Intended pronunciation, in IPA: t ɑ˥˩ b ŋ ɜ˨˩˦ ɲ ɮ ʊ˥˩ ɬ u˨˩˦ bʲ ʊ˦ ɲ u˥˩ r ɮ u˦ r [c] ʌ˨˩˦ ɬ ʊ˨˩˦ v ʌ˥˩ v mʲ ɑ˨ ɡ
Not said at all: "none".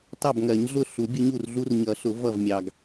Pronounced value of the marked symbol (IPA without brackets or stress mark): ɲ